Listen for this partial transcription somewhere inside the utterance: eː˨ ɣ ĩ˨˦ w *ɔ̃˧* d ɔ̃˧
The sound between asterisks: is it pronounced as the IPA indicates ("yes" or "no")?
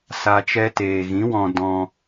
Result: yes